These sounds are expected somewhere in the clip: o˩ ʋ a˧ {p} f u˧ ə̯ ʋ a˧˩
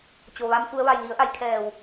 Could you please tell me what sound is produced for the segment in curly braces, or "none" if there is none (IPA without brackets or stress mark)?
m